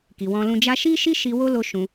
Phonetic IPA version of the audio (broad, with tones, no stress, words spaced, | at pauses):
ki˨wɔ̃˧lũ˧ d͡ʒa˧ʃi˦ʃi˦ ʃi˧wo˦lo˧ ʃũ˧